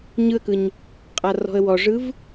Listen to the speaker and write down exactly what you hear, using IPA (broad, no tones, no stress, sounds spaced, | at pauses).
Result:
ɲ ɯ ə̯ k ɯ ɲ | qʼ a r ɔ̤ ə̯ w ɔ ʐ ɯ v